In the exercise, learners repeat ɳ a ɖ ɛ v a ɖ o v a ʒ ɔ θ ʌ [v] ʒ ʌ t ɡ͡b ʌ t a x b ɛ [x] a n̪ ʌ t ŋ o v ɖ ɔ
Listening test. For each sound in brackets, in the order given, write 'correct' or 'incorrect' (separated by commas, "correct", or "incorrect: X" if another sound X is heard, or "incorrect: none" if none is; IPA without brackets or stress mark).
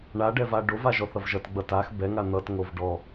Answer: correct, incorrect: ŋ